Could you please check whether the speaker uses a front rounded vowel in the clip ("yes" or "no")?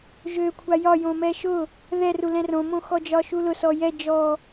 yes